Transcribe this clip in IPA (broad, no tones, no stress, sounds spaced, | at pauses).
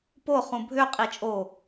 p o χ ũ bʱ ø qʼ i t͡ʃʼ o